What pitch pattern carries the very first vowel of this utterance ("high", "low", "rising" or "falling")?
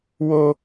high